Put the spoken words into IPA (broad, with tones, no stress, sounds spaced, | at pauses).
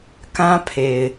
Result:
k ã˦ pʰ e˨ ɪ̯